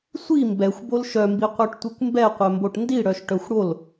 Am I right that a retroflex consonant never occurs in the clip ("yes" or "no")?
no